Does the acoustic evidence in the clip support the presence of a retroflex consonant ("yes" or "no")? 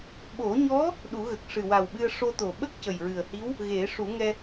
yes